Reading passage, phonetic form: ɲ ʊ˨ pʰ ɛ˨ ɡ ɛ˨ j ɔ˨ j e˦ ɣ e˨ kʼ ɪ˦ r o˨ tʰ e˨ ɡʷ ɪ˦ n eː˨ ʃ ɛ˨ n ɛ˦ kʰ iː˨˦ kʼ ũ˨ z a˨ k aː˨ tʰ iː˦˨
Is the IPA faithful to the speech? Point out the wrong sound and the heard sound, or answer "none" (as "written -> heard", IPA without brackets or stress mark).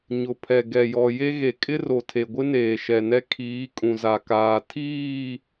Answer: none